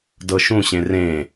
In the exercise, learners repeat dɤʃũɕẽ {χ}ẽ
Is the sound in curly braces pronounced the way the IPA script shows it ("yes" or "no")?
no